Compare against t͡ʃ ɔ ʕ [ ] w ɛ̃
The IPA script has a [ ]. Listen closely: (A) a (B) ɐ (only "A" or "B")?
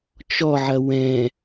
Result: B